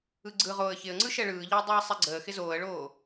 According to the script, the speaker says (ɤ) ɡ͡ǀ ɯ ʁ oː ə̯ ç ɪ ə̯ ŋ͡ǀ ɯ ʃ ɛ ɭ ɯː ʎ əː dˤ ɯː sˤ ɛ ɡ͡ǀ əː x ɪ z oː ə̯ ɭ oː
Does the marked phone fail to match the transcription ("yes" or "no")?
yes